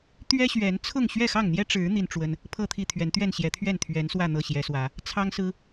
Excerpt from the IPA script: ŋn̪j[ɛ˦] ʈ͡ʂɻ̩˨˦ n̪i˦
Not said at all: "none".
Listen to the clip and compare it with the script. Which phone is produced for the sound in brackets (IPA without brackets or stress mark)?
ɛ˦